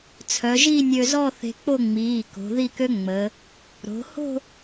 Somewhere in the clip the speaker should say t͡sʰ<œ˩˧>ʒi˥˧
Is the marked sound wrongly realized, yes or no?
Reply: no